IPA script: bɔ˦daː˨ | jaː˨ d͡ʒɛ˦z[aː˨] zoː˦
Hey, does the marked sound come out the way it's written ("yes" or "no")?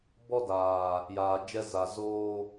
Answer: no